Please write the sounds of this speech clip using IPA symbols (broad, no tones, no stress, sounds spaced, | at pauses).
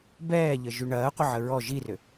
b ɛː ʎ ə ʒ y ɳ ɐː qʷ ə ʕ ə ɹ ɔ ʒ i r ʏ